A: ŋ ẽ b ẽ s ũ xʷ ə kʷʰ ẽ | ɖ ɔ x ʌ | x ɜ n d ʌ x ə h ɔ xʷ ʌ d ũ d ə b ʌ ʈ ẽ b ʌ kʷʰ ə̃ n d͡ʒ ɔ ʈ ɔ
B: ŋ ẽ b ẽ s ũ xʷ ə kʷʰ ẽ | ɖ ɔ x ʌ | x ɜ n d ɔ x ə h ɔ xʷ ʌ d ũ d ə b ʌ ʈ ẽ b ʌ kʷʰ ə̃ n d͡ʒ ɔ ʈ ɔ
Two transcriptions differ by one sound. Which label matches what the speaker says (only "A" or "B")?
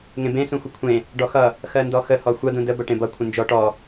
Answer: B